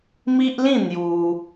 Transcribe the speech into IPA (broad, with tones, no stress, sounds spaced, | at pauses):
m i˦ ʔ l ĩ˥˧ n̪ j u˧